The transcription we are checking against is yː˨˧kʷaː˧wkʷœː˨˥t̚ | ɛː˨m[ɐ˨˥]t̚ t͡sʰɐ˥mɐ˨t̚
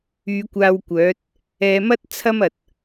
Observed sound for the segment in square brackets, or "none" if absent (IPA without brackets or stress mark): ɐ˥